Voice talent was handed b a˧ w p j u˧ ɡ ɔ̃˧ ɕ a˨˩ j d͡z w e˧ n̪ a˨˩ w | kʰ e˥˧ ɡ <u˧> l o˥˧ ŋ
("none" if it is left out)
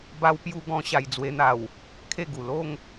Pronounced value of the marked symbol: u˨˩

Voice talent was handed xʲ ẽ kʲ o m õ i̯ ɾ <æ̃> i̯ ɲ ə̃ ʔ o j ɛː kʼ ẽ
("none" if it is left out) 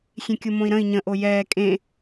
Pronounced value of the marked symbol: ə̃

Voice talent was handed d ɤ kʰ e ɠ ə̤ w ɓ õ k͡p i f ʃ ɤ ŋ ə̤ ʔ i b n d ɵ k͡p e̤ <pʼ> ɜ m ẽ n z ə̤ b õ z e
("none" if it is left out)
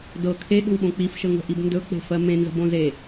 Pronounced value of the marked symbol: f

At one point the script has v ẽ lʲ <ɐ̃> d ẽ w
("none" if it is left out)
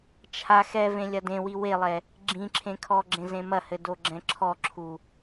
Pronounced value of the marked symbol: ɐ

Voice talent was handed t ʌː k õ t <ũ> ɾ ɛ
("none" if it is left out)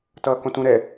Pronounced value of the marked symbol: ũ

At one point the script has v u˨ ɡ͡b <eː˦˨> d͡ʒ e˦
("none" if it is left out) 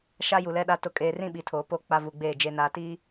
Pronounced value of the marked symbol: eː˦˨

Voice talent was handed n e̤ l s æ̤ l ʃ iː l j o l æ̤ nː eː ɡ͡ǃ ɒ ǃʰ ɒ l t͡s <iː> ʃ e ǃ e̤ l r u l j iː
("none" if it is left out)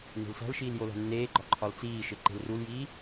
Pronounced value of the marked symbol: iː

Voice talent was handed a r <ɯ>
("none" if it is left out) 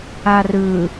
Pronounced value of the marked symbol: ɯ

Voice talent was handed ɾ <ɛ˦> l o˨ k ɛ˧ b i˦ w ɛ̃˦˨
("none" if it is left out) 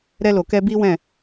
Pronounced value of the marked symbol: ɛ˧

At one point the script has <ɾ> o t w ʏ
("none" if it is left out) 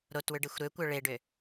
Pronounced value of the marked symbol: ɾ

